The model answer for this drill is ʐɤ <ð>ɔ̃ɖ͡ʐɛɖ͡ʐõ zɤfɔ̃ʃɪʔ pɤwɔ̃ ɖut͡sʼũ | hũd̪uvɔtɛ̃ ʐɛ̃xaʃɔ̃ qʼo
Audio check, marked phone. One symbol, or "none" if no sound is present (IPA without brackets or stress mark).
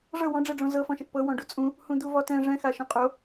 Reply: w